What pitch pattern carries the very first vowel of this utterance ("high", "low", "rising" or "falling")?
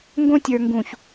high